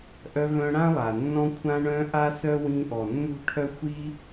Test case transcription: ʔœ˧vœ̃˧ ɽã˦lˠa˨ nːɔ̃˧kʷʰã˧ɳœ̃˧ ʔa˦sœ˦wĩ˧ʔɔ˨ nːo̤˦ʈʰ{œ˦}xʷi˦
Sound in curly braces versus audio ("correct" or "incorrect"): correct